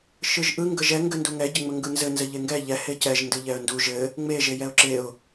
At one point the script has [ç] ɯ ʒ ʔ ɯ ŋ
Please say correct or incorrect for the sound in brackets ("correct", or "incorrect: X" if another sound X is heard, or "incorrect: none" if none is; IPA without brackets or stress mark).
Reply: incorrect: ʃ